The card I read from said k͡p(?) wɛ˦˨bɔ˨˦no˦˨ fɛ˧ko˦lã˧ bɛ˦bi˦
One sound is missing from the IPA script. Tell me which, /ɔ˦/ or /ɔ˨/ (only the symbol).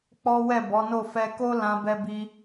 ɔ˦